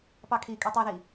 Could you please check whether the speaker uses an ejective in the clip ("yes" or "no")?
yes